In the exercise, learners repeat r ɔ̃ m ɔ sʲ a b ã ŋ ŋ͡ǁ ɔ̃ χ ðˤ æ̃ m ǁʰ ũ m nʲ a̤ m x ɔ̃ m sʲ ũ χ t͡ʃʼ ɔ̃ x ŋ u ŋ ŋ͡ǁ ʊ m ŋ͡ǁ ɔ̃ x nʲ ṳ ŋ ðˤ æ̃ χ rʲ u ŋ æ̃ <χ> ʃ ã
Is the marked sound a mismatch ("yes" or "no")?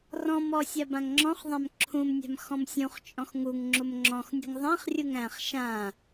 no